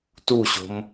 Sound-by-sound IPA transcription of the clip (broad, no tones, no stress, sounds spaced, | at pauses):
t u ɕ o̤ m